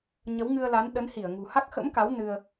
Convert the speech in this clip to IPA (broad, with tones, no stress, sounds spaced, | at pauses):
ɲ ə˨˦ w ŋ ɨ˧ ə̯ l a˨˦ n ɗ ə˨˦ n h i˧˩ ə̯ ŋ ṳ˨˩ h a˦˥ k̚ x ə̰˧˥ m k a˨˦ w n ɨ˧ ə̯